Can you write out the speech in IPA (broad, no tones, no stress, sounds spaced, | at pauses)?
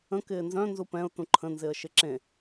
ə̃ k ɪː n z œ̃ n z u p ɛ̃ ʊ̯ t ũ ǃʰ ə̃ n z ɪ ə̯ ʃ ɪ ǁ ẽ